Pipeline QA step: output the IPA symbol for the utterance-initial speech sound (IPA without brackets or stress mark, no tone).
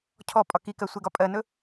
cʰ